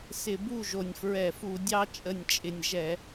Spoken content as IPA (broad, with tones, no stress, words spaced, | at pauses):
sɪ˧˩˧ bu˥˨ʒo˨˩nʲfɹɛ˧˩˧fu˧˩˧ dʲɑ˧t͡ʃʼə˨˩nʲt͡ʃʼɪ˨˩nʲ ʒɛ˧˩˧